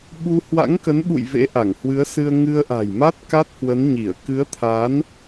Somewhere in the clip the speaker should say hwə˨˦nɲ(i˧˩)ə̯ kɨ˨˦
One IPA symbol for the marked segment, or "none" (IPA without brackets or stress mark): i˧˩